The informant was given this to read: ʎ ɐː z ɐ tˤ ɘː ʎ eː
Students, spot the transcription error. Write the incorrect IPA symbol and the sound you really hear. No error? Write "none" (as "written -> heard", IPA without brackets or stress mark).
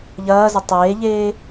ɘː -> eː